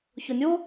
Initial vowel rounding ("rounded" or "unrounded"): rounded